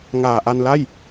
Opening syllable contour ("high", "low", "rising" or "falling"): low